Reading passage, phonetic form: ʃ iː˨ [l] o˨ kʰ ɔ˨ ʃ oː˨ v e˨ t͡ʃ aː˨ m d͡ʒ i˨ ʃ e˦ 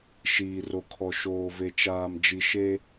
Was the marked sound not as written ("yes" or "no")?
yes